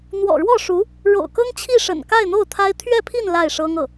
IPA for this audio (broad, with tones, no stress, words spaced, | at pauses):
n̪wɔ̰˨˩ɻwɔ˥˩ʂu˧˥ | ɻo̰˨˩ʊ̯kɤ˥ŋt͡ɕʰi˥˩ʂə̰˨˩n ka˥˧ɪ̯n̪o˥˩ʊ̯t̪ʰa˥ɪ̯ t̪ʰɥɛ˥˧pʰi˥˧n la˥˩ɪ̯ʂɤ˥ŋɤ˥˩